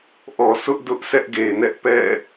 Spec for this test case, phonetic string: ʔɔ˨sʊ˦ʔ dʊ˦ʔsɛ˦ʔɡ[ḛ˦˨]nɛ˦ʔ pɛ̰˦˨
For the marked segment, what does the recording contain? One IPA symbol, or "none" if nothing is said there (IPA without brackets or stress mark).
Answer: e˨